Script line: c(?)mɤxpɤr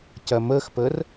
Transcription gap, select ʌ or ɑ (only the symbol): ʌ